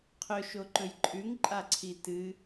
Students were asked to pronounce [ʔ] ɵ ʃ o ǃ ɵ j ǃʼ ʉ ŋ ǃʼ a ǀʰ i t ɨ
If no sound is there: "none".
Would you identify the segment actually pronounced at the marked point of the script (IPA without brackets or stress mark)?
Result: qʰ